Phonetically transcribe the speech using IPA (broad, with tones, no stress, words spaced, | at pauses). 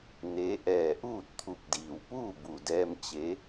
ne˧˥ ʔɛː˧˩ʔuː˥˨t̚t̪ʰu˧˩p̚diː˩w puː˥˨bu˩dɛː˧m t͡ɕe˧˥